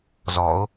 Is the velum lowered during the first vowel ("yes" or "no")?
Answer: no